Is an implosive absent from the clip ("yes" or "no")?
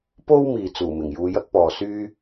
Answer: yes